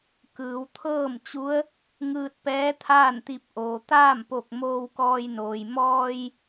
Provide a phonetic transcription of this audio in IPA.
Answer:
kɯː˩˧w t̪ʰɤː˥˨mt͡ɕu˧˥ə̯ | ŋɯː˧t̚pɛː˧˥ t̪ʰaː˥˨nt̪i˧˩p̚ʔoː˩ t̪aː˥˨mpo˧˩k̚ moː˧wkɔː˧jnoː˩j mɔː˧j

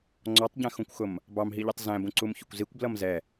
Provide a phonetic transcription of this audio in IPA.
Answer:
ŋ͡ǀɔtˤɟæ̃xũkʷxʊm | bɑmɦiʎɛtˤ zæ̃bũ ǀumçʊkʷzikʷ blʌmzɛ

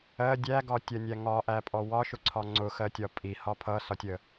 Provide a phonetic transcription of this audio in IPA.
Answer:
ɜ dʲæɡɒtʲɜnʲæ ŋɒʔæpʼɔ wɒʃʊǀʰɒ ŋ͡ǀʊxɜtʲɒ pʼihɒ pʰʌsɒtʲə

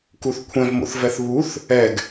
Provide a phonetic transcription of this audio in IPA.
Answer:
kuθkʷʰɛ̃vmo̰θvɛθ βuθ | ɛɡ

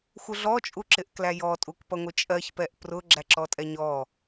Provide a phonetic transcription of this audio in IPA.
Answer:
xʷəɮɔ t͡ʃʼuǁɪʔklæjɔ tʼukpʌŋʷɪt͡ʃʼɜç pɛʔprʊ ɡ͡ǁæǁɔtʼɛɲɔ

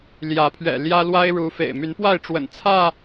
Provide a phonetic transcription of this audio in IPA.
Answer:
ljä˨˦pʰɥɛ̰˨˩ ljä˦lwa˦ɪ̯ ɻu˨˦ fḛ˨˩ɪ̯my˨˦npwa˥˨ɪ̯ ʈ͡ʂwə̰˨˩nt͡sʰä˥˨

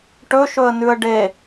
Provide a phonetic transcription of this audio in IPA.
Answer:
ʈɵʃɵə̯nʉə̯ ɖe

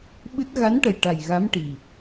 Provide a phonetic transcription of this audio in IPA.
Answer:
ɓɨ˦˥t̚ ɣa˧˥nʈə˨˩j ʈa˨˩jɣa˧˥mʈi˨˩

